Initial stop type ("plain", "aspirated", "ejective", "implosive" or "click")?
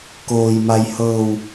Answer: plain